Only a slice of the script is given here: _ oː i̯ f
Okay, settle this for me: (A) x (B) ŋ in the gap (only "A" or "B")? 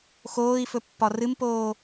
A